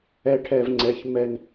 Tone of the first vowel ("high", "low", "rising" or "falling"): high